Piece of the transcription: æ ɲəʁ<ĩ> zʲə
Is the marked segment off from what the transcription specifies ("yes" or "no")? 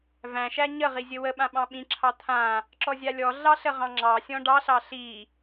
yes